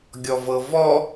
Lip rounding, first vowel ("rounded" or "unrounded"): rounded